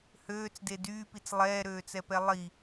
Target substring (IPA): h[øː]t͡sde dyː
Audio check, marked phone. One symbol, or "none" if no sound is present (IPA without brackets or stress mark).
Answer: øː